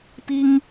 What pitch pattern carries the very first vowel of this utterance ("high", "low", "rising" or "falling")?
high